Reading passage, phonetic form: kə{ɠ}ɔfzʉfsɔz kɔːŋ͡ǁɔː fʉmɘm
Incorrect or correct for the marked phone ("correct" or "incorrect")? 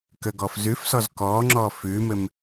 incorrect